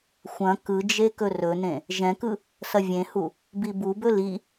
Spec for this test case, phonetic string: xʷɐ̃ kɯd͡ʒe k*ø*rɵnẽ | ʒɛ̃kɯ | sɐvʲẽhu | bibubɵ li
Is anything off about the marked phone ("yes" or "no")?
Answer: yes